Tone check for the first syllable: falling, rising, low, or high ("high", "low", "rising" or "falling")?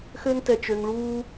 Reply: high